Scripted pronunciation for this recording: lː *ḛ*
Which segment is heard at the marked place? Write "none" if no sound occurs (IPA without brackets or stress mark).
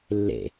ḛ